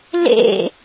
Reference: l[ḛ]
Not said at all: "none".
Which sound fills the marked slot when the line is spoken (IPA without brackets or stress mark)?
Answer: ḛ